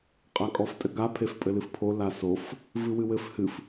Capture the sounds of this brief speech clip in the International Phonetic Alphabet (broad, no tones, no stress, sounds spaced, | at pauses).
qʼ a kʼ ɔ f tʼ ɘ ɡ a pʰ e f pʼ ɘ l ɨ f pʰ o l a s o f | v ɨ w ɨ w ɘ f h ɨ f